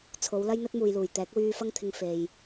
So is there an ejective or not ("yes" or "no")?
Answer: no